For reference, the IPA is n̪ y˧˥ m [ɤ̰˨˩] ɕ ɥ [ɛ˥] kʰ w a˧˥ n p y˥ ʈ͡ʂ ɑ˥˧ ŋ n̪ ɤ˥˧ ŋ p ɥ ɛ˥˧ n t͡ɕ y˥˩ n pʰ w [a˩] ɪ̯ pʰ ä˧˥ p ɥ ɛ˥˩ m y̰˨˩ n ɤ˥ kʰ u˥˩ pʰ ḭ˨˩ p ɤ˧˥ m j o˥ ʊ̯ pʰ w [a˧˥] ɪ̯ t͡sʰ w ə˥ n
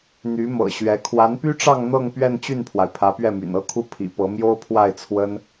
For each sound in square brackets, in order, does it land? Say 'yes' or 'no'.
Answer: yes, no, yes, no

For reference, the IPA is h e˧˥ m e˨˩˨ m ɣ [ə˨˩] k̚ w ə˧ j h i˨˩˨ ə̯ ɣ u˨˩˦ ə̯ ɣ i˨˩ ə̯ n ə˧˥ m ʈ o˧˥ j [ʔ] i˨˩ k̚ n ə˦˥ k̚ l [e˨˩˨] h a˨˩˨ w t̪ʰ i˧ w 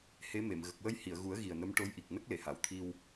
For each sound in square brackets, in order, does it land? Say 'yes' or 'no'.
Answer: yes, yes, yes

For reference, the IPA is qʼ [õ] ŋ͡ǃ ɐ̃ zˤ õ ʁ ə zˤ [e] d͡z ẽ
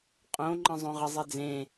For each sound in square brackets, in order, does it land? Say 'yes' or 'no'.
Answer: yes, yes

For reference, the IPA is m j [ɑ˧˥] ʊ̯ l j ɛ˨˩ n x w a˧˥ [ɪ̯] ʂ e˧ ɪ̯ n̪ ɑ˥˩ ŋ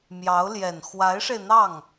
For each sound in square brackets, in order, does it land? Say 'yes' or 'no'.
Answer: yes, yes

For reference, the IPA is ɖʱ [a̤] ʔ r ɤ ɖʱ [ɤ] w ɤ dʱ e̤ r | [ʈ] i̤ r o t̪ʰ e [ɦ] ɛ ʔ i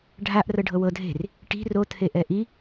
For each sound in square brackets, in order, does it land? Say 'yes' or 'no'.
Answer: no, yes, yes, no

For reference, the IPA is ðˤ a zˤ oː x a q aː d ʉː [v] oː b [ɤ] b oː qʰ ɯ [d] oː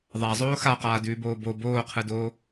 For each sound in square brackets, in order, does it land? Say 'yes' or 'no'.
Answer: no, no, yes

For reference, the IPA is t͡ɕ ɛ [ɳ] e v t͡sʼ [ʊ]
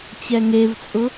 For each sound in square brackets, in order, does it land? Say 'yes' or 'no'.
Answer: no, yes

